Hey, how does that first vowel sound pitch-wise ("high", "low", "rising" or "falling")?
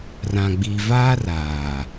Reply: low